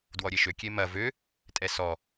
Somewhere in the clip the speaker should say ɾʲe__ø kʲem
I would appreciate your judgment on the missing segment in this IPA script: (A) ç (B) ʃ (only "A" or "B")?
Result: B